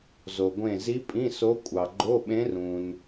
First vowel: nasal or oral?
oral